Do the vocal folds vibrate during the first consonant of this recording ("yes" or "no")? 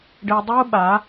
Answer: yes